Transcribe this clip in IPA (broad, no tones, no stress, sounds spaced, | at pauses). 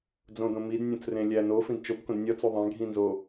d͡z õ d õ m i d nʲ õ t͡s r ẽ lʲ æ n o f ĩ d t͡ʃ o b k õ d nʲ ɒ t͡s u ðˤ æ̃ ɡʱ ĩ n z o